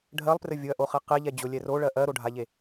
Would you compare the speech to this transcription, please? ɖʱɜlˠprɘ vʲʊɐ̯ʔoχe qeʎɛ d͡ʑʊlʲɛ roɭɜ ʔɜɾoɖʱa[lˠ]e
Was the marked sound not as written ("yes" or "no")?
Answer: yes